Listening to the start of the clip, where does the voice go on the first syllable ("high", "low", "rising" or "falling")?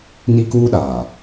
high